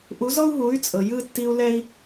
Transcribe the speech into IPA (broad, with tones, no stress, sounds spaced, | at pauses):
ʔ u˨˦ z ɔ˦ u̯ ɦ u˨˦ y̯ t͡sʼ ɤ˨ j ɯ˦ tː i˧ u̯ l ɛ˦ i̯